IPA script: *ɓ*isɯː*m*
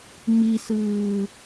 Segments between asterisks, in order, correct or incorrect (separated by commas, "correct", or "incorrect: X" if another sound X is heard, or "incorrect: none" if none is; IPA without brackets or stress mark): incorrect: m, incorrect: none